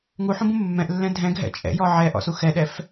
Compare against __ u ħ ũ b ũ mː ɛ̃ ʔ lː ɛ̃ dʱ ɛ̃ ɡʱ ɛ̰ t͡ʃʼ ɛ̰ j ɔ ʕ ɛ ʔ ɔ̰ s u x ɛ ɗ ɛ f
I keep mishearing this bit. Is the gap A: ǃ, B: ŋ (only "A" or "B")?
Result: B